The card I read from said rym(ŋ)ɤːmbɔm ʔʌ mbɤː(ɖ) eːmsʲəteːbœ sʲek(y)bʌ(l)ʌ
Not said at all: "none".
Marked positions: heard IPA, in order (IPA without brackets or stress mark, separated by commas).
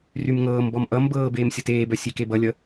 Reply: ŋ, b, e, lʲ